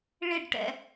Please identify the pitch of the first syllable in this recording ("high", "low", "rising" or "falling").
falling